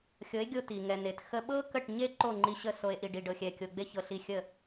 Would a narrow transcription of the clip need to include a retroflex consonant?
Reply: yes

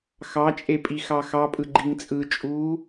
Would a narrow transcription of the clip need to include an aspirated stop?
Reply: no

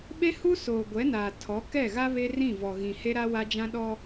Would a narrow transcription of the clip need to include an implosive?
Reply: yes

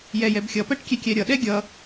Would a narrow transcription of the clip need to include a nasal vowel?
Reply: no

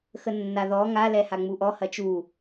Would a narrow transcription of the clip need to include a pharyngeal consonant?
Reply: no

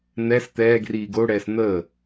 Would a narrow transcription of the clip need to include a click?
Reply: no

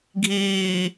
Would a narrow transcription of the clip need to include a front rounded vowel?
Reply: no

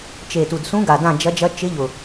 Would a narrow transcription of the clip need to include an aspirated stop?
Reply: no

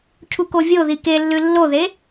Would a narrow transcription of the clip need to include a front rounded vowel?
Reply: no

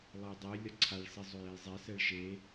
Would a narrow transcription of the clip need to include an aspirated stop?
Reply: yes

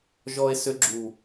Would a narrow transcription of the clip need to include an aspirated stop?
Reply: no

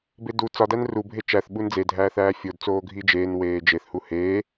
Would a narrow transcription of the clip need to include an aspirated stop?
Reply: no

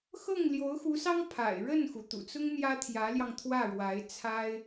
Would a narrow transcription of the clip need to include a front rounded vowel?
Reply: no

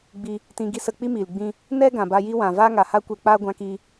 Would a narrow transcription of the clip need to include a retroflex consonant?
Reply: no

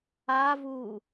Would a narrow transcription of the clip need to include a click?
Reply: no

